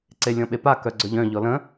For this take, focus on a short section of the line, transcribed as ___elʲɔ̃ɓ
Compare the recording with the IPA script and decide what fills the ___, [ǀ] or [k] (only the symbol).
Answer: ǀ